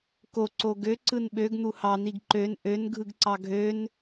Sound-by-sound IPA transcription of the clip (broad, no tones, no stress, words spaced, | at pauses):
koǀo ɡøǀɯn ɓøɡn̪u hɑn̪iɡ ǃøn ʔønɡʱɯɡǀɑ ɡʱøn